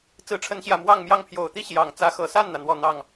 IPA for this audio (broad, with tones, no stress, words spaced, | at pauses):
t͡sɹ̩˧˥ʈ͡ʂʰə˧˥nɕjä˨˩ mwɑ˥˧ŋmjɑ˥˩ŋpʰjo˨˩ʊ̯ t̪i˥ɕjɑ˨˩ŋt͡sä˧˥ xɤ˨˩sa˥˩nn̪ä˩n̪wɔ˨˩ n̪ɑ˥˩ŋ